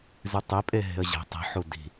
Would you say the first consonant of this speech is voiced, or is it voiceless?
voiced